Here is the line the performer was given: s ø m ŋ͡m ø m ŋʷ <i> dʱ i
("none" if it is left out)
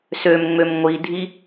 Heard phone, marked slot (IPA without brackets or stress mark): i